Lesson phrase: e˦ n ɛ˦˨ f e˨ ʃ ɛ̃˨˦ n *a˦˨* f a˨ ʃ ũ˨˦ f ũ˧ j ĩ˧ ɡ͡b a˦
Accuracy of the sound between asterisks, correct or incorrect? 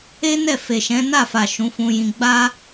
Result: correct